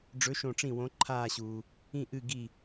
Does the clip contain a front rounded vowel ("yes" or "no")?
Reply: no